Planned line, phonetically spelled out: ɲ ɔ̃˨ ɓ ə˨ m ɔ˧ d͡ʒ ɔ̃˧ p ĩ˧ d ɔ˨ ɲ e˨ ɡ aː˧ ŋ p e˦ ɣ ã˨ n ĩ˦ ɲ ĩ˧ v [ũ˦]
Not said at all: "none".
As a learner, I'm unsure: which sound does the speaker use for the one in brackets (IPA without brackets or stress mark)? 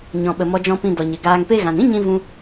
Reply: ũ˦